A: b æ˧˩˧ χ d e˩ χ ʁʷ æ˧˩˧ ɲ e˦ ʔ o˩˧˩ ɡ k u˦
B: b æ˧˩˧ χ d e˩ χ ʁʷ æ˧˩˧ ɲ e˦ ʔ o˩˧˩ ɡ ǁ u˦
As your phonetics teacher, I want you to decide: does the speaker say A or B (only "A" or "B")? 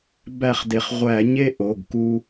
A